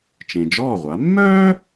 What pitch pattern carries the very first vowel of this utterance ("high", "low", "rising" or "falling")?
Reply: low